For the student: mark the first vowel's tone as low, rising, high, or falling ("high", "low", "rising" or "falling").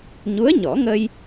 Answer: rising